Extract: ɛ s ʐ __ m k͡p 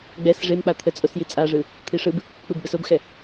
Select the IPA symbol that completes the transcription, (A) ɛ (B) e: B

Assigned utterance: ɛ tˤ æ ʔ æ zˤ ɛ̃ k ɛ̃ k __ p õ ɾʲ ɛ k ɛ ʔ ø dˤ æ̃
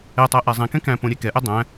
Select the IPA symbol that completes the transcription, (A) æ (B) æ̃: B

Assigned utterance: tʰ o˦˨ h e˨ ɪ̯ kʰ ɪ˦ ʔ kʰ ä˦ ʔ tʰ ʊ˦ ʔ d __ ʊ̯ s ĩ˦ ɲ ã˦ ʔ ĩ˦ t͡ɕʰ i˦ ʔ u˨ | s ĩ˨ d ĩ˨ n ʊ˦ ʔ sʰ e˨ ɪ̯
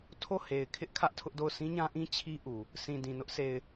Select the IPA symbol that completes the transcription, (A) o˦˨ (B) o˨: A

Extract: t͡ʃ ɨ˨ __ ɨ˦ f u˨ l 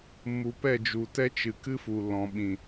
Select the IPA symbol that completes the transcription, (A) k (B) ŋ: A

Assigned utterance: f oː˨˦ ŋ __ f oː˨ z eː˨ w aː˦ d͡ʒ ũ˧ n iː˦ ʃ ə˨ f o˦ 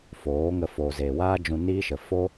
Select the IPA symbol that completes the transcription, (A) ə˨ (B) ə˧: B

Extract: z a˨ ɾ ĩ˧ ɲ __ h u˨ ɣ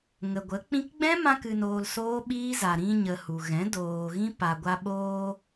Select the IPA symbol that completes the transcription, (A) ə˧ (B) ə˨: B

